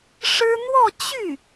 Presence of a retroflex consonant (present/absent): present